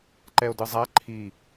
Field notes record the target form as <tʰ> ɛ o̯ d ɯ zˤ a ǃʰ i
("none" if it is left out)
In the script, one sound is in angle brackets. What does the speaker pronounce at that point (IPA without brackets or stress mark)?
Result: ǃ